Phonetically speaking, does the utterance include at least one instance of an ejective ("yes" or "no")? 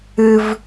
no